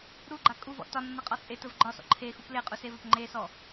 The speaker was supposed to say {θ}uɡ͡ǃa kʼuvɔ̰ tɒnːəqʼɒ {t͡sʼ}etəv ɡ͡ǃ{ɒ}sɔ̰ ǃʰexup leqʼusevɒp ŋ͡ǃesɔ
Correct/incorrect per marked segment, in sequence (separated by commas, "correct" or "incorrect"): incorrect, correct, correct